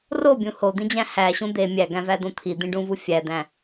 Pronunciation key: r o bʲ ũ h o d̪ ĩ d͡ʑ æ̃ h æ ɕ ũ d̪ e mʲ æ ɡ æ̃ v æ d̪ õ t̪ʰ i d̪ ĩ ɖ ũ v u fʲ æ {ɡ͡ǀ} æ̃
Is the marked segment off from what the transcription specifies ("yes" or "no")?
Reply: yes